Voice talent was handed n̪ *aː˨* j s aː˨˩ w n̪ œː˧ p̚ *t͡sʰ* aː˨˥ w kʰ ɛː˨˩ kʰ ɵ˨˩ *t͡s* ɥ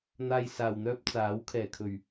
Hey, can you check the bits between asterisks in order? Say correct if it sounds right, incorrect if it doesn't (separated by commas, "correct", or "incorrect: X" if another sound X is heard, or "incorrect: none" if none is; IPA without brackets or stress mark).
correct, incorrect: t͡s, incorrect: none